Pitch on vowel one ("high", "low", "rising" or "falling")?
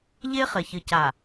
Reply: high